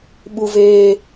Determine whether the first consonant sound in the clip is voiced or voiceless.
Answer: voiced